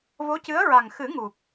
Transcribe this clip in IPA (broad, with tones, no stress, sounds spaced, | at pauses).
v o˧˥ c ɨ˧˥ ə̯ ɹ a˨˩ ŋ x ɨ˨˩˦ ŋ u˨˩ k̚